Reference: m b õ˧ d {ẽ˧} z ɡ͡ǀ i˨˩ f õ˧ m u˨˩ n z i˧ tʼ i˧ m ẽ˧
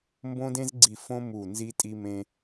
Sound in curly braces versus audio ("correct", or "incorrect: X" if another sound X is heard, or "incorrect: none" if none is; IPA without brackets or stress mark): correct